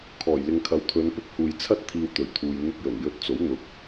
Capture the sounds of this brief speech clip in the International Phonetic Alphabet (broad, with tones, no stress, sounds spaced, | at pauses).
kʰ ɔː˨˩ j l ɪ˨ ŋ kʰ ɐ˨˥ w t̪ʰ ɵ˨˧ n p ɪ˥ k̚ h uː˨ j t͡sʰ ɐ˥ t̚ t̪ʰ iː˧ w t̪ ɵ˨˩ ɥ t̪ʰ uː˨ j n̪ ʊ˧ k̚ j ɵ˨˩ n j ɵ˧ t̚ t͡s o˨˥ w n̪ ʊ˨ k̚